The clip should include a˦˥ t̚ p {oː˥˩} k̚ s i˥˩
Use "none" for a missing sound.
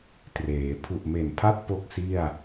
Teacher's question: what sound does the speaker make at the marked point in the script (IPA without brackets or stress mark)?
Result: o˥˩